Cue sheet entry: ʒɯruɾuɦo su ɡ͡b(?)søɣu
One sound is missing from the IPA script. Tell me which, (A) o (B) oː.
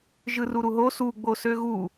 A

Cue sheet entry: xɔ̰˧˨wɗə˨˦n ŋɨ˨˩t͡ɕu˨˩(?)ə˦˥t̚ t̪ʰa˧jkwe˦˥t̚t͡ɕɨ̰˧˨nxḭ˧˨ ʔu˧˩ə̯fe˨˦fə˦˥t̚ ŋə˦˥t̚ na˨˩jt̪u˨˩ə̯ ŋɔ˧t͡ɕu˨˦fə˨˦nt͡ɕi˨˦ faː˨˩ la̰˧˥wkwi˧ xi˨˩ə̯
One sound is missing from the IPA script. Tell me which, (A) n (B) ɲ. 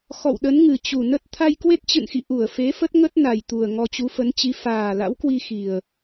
A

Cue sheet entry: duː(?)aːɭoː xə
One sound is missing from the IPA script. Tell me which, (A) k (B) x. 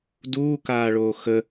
A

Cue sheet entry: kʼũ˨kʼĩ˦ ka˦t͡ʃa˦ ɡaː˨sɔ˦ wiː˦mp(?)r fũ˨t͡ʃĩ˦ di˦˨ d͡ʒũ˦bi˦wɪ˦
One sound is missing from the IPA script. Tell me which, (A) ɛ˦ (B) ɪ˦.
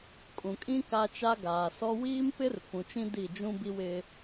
B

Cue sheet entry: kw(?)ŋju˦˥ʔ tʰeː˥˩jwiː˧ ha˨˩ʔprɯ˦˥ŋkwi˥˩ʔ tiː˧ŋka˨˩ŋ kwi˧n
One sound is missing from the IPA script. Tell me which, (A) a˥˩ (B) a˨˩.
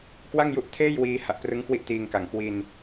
A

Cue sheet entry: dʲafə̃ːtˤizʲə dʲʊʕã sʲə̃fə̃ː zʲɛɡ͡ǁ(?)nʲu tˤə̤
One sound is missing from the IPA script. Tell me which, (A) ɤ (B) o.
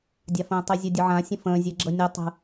A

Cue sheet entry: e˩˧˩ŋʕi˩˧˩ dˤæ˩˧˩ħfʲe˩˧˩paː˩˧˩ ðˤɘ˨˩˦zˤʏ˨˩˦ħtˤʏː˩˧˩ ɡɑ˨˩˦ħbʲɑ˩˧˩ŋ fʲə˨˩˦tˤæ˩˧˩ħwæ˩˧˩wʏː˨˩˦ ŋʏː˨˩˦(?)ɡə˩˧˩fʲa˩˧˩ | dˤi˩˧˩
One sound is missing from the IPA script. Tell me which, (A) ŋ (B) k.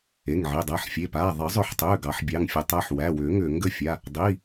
A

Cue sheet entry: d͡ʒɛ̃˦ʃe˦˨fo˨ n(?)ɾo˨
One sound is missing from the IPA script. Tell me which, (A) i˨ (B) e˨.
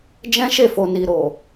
A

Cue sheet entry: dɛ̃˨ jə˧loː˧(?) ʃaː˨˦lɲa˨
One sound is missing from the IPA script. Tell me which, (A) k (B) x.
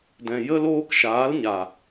A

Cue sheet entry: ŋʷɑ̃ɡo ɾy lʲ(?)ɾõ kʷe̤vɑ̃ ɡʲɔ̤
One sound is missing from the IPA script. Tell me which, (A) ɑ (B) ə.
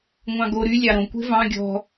A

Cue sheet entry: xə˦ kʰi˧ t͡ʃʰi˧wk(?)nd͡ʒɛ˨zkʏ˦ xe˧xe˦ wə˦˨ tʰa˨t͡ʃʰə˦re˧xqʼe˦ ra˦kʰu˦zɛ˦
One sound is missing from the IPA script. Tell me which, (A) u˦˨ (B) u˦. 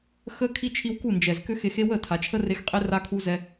A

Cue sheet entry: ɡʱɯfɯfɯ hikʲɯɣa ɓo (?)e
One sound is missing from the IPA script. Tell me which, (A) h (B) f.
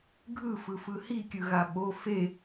B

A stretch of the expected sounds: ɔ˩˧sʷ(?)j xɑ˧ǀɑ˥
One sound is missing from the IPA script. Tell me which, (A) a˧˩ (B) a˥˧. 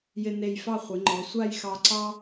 B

